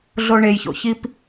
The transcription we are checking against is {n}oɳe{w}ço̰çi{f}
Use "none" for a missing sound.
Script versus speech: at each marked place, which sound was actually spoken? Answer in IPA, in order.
ɮ, j, p

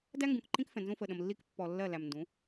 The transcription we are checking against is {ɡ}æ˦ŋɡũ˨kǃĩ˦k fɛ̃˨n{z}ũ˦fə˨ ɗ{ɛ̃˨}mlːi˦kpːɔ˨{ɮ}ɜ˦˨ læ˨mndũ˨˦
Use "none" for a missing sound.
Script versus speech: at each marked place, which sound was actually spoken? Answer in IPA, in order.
d, z, ə̃˨, lː

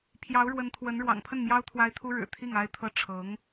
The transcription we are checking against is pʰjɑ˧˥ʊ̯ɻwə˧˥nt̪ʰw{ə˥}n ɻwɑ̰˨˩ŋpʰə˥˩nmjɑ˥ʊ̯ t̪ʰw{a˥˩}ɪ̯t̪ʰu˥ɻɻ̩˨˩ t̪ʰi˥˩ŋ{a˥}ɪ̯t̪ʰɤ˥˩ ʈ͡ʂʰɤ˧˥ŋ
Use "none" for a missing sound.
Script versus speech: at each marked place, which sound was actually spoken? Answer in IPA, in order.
ə˧˥, a˥, a˥

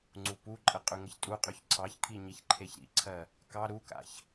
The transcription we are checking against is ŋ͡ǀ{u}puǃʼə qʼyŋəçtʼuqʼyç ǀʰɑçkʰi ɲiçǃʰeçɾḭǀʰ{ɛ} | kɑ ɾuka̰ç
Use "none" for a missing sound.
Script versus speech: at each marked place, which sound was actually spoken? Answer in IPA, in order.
u, ɜ

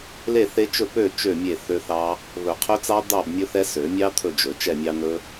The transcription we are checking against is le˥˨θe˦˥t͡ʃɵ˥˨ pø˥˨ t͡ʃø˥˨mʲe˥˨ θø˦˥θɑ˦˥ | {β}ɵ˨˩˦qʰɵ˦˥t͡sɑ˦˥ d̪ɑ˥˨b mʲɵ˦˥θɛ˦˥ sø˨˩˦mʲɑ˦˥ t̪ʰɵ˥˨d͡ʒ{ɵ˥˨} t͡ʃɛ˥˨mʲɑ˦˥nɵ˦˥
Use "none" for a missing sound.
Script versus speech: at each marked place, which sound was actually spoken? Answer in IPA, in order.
β, ɵ˨˩˦

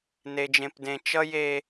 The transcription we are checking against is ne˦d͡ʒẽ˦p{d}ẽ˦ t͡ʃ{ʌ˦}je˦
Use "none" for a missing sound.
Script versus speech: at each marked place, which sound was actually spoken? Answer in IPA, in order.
d, ʌ˦

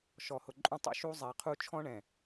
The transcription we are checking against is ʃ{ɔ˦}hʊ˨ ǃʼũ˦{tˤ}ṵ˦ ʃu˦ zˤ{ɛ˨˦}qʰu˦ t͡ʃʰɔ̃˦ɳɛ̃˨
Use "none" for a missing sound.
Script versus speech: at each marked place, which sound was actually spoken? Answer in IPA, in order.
ɔ˨, tˤ, ɛ˨˦

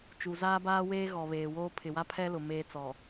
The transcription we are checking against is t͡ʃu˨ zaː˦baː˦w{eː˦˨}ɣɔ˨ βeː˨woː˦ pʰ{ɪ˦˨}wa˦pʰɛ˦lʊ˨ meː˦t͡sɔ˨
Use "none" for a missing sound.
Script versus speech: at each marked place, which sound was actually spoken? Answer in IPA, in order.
eː˦, ɪ˨

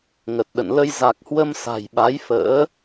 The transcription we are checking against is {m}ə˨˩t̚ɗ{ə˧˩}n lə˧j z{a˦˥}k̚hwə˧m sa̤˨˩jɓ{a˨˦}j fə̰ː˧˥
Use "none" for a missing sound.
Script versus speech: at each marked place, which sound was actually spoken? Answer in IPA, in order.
ŋ, ə̰˧˨, a˨˩, a˨˦

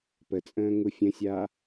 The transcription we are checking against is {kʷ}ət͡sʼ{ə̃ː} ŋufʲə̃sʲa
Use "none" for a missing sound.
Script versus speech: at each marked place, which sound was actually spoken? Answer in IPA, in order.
p, ə̃ː

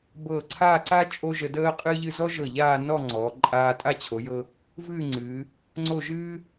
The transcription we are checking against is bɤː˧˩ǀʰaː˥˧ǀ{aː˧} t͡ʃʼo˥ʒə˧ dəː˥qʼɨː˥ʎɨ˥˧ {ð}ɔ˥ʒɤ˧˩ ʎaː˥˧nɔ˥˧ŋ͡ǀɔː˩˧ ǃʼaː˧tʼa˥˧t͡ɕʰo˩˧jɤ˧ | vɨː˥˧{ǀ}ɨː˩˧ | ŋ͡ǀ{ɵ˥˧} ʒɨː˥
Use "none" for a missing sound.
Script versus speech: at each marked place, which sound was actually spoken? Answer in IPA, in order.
aː˥, z, ŋ͡ǀ, o˥˧

